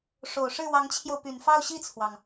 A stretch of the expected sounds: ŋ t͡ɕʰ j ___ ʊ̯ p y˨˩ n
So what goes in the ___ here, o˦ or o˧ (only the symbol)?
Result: o˧